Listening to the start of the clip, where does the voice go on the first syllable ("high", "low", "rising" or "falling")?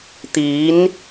rising